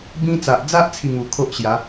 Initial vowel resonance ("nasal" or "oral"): nasal